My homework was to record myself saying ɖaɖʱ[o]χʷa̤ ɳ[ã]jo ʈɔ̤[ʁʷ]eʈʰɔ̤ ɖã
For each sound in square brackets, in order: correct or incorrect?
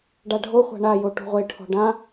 correct, incorrect, correct

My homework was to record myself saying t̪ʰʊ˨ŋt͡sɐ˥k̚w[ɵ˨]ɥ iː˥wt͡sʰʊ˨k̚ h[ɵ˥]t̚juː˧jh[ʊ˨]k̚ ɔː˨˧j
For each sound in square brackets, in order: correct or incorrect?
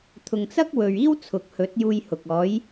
correct, incorrect, correct

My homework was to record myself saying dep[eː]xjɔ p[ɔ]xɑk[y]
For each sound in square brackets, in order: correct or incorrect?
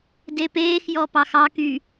correct, incorrect, correct

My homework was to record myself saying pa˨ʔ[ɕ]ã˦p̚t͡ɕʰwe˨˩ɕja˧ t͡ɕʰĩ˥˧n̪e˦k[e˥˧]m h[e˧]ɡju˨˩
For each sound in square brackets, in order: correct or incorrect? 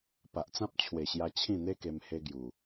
incorrect, incorrect, incorrect

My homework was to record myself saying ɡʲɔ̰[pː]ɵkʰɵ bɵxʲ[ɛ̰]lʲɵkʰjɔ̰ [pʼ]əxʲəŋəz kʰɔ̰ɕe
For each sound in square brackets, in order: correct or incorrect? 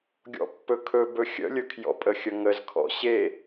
correct, incorrect, correct

